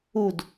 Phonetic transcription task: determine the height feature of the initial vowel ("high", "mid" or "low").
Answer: high